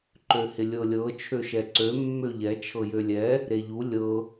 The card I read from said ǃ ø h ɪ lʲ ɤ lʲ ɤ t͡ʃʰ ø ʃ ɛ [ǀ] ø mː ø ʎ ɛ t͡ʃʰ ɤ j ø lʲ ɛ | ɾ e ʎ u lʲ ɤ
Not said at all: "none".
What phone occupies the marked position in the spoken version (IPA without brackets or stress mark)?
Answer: ǀ